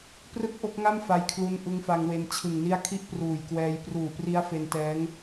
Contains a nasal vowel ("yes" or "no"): no